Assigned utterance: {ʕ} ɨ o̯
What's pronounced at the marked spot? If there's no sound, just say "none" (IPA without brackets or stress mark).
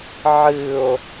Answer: ʕ